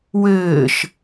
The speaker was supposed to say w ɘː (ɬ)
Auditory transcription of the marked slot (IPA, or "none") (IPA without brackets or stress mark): ʃ